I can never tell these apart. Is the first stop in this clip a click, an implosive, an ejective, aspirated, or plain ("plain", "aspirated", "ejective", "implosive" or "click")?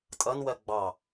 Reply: ejective